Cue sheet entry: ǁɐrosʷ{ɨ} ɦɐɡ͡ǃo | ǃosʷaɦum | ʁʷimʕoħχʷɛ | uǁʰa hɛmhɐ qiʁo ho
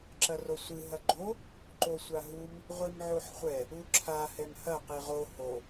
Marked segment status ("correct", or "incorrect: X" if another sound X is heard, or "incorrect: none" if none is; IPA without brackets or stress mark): correct